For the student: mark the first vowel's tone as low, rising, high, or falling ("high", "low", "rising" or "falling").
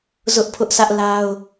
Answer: high